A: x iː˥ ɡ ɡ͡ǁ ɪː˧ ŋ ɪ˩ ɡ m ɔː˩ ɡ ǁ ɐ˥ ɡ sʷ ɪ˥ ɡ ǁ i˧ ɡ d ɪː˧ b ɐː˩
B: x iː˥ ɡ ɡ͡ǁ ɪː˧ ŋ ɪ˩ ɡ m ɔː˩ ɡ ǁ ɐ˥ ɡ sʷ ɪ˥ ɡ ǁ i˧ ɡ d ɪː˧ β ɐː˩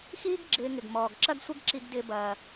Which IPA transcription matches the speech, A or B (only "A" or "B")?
A